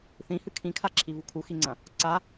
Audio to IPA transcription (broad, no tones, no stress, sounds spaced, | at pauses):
θ ĩ h ɨ kʰ ĩ kʰ a ǁʰ i v u kʰ u x i ŋ͡ǀ ɐ̃ | ǀ a